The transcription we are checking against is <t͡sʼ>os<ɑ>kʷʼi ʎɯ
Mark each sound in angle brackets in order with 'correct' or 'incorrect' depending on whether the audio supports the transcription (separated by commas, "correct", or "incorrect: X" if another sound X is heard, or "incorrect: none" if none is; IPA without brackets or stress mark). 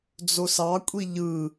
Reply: incorrect: d͡z, correct